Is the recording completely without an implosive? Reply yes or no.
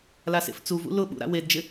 no